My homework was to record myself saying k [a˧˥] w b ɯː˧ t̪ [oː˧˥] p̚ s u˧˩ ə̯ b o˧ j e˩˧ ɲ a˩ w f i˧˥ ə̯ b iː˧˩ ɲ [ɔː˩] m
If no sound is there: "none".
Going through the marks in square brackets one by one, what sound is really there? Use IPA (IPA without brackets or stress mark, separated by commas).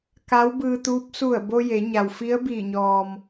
a˧˥, uː˧˥, ɔː˩